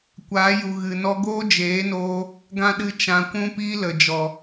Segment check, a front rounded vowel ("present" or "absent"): absent